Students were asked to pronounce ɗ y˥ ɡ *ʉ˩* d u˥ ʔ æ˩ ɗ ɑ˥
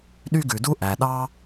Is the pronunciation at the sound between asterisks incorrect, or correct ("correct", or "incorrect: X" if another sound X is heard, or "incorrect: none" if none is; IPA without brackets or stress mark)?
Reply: correct